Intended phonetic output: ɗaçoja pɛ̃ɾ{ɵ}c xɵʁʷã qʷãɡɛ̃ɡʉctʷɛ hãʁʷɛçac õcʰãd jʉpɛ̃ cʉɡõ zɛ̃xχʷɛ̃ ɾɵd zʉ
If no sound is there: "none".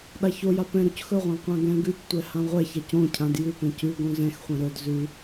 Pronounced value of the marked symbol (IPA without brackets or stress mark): ɵ